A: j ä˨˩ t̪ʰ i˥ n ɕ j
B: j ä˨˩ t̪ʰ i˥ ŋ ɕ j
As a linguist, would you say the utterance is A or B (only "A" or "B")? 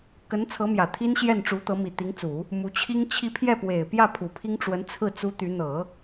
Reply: A